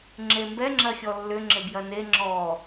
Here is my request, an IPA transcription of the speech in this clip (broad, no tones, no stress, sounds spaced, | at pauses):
ŋ͡ǁ e m b ɛ ŋ͡ǁ ɐ xʲ ɔ lː ʏ ŋ͡ǁ ɪ b j ɐ n e ŋ͡ǁ ɔ